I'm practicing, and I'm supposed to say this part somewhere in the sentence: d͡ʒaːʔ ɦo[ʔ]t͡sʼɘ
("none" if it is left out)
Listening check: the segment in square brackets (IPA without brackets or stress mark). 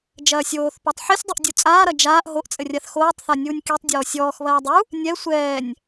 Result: ʔ